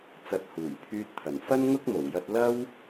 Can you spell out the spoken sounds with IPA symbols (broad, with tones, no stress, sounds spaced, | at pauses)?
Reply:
t͡s ɐ˨˥ t̚ h uː˨˩ j pʰ yː˧ t̚ t̪ʰ ɐ˨˩ n f ɐ˥ n ŋ ʊ˥ k̚ m o˨˩ w j ɐ˧ t̚ l ɐ˥ w